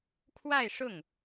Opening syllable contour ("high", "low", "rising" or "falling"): falling